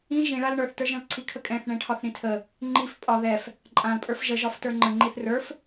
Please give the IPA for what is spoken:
ĩ ʒ ĩ ɭ a l ɳ ə˞ θ t ə˞ ʒ ə̃ l ǀʰ i kʰ ə kʼ ɛ̃ θ ɳ ɛ̃ ʈʰ ɒ θ ɾ ĩ tʰ ə | ŋ͡ǃ i f pʼ ɒ ð ɛ f | ǃʼ ã l pʼ ə˞ f ʒ ə ʒ ɒ f t ə˞ ŋ͡ǃ ə̃ ŋ͡ǃ i θ r ə˞ f

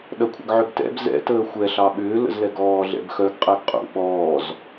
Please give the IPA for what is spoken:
ɗ ɐ kʷʰ ə̰ ɡ ʕ ʏ ɡ t ɛ̰ b z ɛ̰ t əː xʷ ɛ ɬ ɑ ɓ ʏː l ə̰ z l ɛ ɡ ɔː ɮ ɛ̰ b x œ ɡ qʼ ɛ ɡ qʼ ṵ ɓ ɔː z

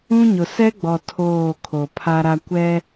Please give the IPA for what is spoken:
ũ˦ ɲ ʊ˨ s ɛ˦ ɡ͡b ɔ˨ tʰ oː˦˨ kʰ o˨ pʰ a˦ ɾ a˦ kʷ ɛ˦

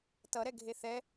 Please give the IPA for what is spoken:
t ʌ ɾ ɛ ɡʱ e θ ɛ

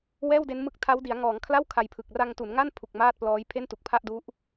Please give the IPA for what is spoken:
w ɛː˥˩ w d e˦˥ n m ɯ˦˥ k̚ tʰ a˦˥ w d i˩˦ a̯ ŋ ɔː˩˦ ŋ kʰ l a˥˩ w kʰ a˧ j pʰ ɯ˨˩ k̚ r a˧ ŋ t u˩˦ n ŋ a˥˩ n pʰ u˨˩ k̚ m aː˥˩ t̚ p l ɔː˦˥ j pʰ e˥˩ n t u˨˩ k̚ pʰ a˥˩ ʔ d u˦˥ ʔ

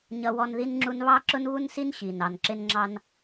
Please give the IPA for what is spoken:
ɲ ʌ˥ w ɔ˥ n ð i˥ n ŋ͡ǁ u˥ n β ɑ˥ ǁ ʊ˥ n β u˥ n s i˥ n ɕ i˩ n ɑ˩ n ǁ ɪ˥ n ŋ͡ǁ ɑ˥ n

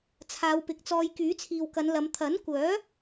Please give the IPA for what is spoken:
t͡sʰ aː˨˧ w p ɪ˨˥ k̚ t͡s ɔː˧ j k yː˨˥ t͡sʰ iː˨ w k ɐ˨˧ n l ɐ˨˧ m t̪ʰ ɐ˨˥ n kʷ œː˨˥

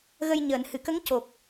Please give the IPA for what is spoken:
ɣ ə˧ j ɲ əː˨˩˨ n h ɨ˨˩˨ k ə˧˥ ŋ c o˨˩ k̚

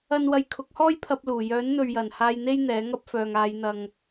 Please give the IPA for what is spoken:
ɐ˥ n w ɐ˧ j kʰ ʊ˨˥ k̚ h ɔː˥ j pʰ ɐ˧ p̚ l uː˨˩ j œː˨˥ n n̪ ɵ˨ ɥ j ɐ˨˩ n h aː˧ j n̪ e˥ j n̪ ɛː˨˥ ŋ ɐ˥ p̚ f œː˨ ŋ aː˨˧ j n̪ ɐ˨ ŋ

